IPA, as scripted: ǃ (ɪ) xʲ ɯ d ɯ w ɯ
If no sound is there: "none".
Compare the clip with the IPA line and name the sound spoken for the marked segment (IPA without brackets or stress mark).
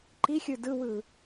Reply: i